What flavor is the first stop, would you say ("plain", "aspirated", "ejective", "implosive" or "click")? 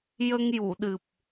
implosive